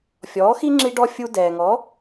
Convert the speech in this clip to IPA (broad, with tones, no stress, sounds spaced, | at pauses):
fʲ ɔː˩˥ x i˥ ŋ͡ǁ i˧ ɖ ɔ˧ fʲ u˧ d ɛː˩ ŋ ɔ˩˥